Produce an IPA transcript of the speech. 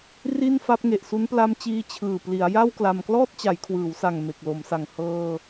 r i˥˩ n f a˦˥ p̚ ŋ e˨˩ ʔ s u˦˥ n p l a˦˥ m t͡ɕ iː˧ t͡ɕʰ ɯː˨˩ p l i˩˦ a̯ j a˥˩ w k l a˧ m k l ɔː˥˩ t̚ t͡ɕ a˩˦ j kʰ w ɯː˩˦ w s a˨˩ ŋ m e˨˩ k̚ l o˩˦ m s a˨˩ ŋ h ɤː˧

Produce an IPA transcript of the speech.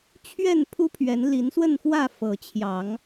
t͡ɕʰ ɥ ɛ˥˨ n pʰ u˦ pʰ ɥ ɛ˨˦ n l i˨˦ n s w ə˥˨ n x w ä˥˨ f ɤ˨˦ t͡ɕʰ j ɑ˨˦ ŋ

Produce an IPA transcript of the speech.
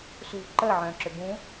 s ṳ v ǃ əː ʕ œ̃ː ǁ ʏ b ũ

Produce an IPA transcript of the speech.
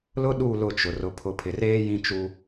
l ʊ˦ ɗ u˦˨ l ʊ˦˨ t͡ʃ ʊ˨ r ʊ˨ pʰ ʊ˨ pʰ ɪ˨ r eː˦ j ĩ˦ t͡ʃ u˦

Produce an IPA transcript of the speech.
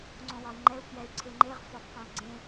ŋ͡ǀ õ w ɒ i̯ ŋ͡ǃ ɛ u̯ k j ɛ y̯ ǀʰ e ŋ͡ǃ e ʁ f ɒ f q õ u̯ ɡ͡ǀ ẽ

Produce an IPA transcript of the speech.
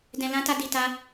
d ɛ̃˨ l ã˨˦ t a˧ d i˨ t a˧

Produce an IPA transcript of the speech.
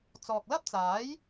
t͡s ɔː˨ k̚ l ɐ˥ p̚ t͡s aː˨˥ j

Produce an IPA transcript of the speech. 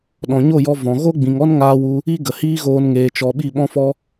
ɗ ɔ̃˨ ɲ o˦˨ j ɔ˧ v ɔ̃˨ ɣ o˦ ɡ͡b ĩ˨ ŋ ɔ˦ n ŋ aː˧ w u˧ | i˦ ɡ ə˨ h iː˦ ɣ oː˧ n ŋ eː˨ t͡ʃ ɔ˨ ɓ i˦˨ ɓ ɔ̃˦ f ɔ˦

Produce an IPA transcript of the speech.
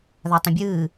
ð a tˤ ɐ̃ bʲ ɨː

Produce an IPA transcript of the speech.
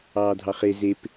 ɑː dʱ ɑ χ e z e p

